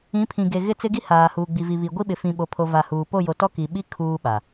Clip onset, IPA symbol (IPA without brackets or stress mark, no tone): ĩ